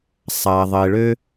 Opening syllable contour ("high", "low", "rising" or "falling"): low